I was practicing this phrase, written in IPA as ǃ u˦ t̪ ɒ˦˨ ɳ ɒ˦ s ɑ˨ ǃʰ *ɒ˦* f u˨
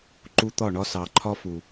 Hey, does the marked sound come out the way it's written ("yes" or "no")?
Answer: yes